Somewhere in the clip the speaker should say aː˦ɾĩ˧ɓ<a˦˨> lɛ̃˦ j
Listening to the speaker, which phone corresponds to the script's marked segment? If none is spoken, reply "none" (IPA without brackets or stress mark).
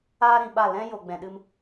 a˦˨